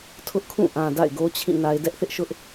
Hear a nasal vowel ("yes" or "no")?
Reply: yes